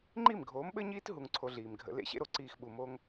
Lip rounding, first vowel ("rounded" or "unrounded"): unrounded